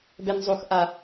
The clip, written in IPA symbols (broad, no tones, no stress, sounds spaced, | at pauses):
b ɛ n zˤ o x ʔ a